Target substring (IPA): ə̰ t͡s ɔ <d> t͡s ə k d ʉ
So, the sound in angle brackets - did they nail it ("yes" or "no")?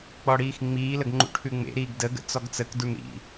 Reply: no